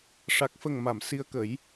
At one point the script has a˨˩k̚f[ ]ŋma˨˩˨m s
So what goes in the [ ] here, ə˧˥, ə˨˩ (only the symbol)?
ə˨˩